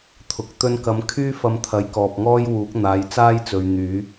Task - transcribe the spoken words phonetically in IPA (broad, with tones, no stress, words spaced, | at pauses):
t̪ʰʊ˨k̚ t̪ɵ˧nkɐ˨˧m kʰyː˥fɐ˧m t̪ʰɐ˨˧jkɔː˨p̚ŋɔː˥jwuː˨˥k̚ n̪aː˨˧jt͡saː˥jt͡sɵ˨ɥ n̪yː˨˥